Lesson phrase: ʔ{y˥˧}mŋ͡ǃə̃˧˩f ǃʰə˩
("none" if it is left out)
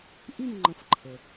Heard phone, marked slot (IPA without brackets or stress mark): y˥˧